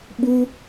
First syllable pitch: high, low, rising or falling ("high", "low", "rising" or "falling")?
high